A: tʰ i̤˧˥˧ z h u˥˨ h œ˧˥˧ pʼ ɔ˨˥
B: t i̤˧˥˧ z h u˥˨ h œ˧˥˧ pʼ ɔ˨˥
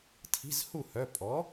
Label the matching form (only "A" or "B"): A